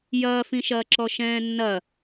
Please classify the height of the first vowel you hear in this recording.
low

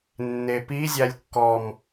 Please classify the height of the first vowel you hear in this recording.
mid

